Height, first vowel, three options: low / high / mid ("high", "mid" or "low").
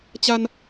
low